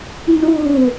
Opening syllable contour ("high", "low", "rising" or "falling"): falling